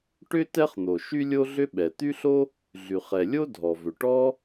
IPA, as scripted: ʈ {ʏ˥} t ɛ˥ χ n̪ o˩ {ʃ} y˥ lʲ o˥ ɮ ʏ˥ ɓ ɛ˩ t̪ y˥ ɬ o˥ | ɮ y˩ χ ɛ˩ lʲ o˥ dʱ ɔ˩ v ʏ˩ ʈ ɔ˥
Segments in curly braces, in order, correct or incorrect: correct, correct

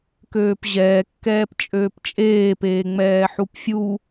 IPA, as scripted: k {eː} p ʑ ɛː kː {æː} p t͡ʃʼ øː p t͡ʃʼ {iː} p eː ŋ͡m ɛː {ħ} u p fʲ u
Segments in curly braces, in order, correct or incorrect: incorrect, incorrect, incorrect, correct

